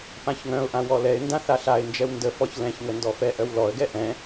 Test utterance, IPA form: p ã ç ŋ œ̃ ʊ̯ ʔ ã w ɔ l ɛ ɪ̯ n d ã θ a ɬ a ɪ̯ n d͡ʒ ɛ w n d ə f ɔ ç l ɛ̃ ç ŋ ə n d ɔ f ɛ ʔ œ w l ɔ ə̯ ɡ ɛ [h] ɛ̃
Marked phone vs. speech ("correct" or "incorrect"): incorrect